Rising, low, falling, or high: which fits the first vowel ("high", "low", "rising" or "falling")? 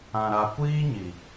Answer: low